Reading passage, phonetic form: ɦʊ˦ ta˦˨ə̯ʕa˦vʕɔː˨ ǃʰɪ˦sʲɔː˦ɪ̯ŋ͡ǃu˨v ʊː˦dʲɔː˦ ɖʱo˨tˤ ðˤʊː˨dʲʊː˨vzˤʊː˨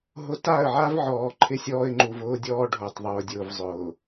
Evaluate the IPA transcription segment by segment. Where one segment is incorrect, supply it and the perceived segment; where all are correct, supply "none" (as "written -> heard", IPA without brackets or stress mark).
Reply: none